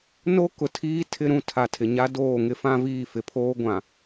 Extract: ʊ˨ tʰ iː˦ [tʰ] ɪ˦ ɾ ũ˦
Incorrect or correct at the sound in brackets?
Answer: correct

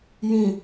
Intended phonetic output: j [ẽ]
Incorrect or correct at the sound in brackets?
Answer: incorrect: ĩ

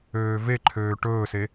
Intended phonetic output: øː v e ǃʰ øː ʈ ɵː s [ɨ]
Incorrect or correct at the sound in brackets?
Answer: incorrect: e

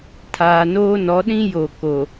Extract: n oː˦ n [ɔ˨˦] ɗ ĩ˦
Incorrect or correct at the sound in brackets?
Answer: correct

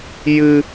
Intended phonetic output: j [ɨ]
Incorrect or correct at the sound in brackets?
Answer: correct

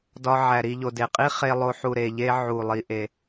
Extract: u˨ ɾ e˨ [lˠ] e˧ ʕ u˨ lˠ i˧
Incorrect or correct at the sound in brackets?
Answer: incorrect: ʎ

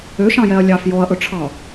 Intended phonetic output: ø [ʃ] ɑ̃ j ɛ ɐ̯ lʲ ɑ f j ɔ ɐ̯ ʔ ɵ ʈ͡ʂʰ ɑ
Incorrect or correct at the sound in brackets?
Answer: correct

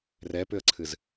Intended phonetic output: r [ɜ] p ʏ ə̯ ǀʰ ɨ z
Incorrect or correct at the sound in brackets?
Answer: incorrect: ɛ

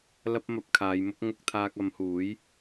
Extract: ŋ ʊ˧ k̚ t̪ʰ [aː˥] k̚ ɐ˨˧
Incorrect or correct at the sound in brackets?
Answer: incorrect: aː˧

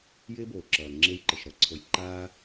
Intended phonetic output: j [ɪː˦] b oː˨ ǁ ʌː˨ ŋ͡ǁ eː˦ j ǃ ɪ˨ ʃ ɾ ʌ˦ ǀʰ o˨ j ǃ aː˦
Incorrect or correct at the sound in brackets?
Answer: correct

